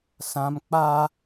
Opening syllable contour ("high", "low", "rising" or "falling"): high